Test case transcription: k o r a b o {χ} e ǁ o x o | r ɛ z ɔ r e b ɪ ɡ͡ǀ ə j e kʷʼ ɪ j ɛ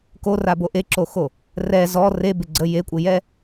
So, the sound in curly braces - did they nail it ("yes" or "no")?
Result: no